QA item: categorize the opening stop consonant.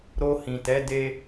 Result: plain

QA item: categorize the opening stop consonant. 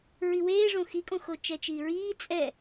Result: ejective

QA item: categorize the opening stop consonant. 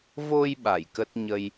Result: implosive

